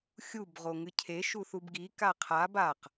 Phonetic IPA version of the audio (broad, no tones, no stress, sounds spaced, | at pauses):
xʲ u b ʁ o ŋ ɨ cʰ e ʃ u θ u b ɡ i k a qʰ a b a q